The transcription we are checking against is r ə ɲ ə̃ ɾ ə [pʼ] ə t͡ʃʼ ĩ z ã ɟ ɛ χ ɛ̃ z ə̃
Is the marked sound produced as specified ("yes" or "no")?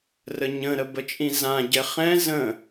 no